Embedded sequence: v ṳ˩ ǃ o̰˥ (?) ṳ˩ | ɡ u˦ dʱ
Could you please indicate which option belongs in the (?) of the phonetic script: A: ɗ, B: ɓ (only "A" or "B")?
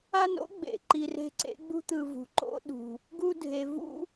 A